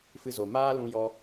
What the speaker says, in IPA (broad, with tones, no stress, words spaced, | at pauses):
fɨ˧zo˨ maː˦lũ˧ jɔ˧